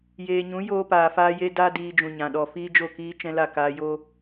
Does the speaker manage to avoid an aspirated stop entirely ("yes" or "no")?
yes